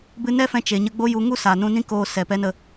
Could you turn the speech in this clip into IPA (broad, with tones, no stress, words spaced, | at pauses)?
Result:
bɨ˧nɛ˦fɛ̃˧ t͡ʃe˨ɲə˧ɡ͡bo˦ju˧ ŋu˦sa˨nũ˧ nĩ˦koː˧ sɛ˨ pɛ˧ nə˦